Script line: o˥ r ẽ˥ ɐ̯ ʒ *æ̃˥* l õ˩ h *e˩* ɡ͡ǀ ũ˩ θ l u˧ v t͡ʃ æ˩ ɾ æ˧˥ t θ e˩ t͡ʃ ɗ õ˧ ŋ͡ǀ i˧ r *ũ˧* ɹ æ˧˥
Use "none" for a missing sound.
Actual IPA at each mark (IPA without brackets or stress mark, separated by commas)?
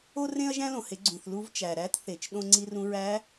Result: æ̃˥, e˩˧, ũ˧